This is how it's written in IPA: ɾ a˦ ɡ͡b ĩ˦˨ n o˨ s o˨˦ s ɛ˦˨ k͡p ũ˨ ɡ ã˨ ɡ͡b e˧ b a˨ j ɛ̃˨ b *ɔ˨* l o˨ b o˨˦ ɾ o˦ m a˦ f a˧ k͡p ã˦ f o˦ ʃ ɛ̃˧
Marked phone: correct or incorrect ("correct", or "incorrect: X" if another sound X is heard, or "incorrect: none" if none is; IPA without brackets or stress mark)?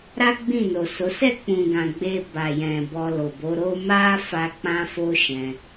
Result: incorrect: ɔ˧